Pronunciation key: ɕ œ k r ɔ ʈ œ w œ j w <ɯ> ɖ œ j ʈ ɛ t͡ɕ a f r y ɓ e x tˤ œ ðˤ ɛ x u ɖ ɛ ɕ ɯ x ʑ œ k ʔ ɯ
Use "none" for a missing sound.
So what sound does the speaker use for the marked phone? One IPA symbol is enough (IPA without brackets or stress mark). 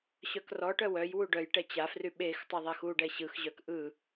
u